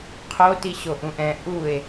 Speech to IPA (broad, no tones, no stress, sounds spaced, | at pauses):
qʰ o t i ɕ o ʔ ũ ʔ ɛ̃ ʔ u e̯